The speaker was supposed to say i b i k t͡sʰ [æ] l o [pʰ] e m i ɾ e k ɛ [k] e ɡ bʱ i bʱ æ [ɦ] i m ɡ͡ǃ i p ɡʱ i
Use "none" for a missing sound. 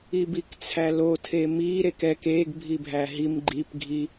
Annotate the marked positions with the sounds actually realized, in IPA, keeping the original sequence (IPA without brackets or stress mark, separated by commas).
æ, tʰ, k, ɦ